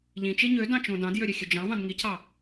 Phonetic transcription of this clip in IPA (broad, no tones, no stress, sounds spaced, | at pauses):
ʎ ĩ t͡ʃ e ɲ ø d ɑ̃ t͡ʃ õ d ɑ̃ d j ø ɾʲ ø xʲ ø d͡ʒ ɑ̃ v ɑ̃ d ŋ i cʰ ɑ